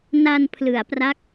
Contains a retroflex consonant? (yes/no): no